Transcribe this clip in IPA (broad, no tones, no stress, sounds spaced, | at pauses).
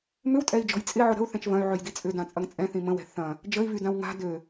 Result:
m ʏ w tʼ ɛ i̯ d͡ʒ ɔ̤ j t͡sʼ ɪ ʕ ʊ ɾ ə̤ u̯ θ ɛ̃ t͡ʃ v ɐ̃ y̯ ʕ ø j d i t͡sʼ ʏ d ã t͡sʼ ɐ ŋ t͡sʼ ɛ̃ θ ĩ m ə̃ w ɛ̤ θ ɐ̃ | d͡ʒ ə i̯ v y d ã w ŋ a̤ d ø